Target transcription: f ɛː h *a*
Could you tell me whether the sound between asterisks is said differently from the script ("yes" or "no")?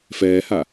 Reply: no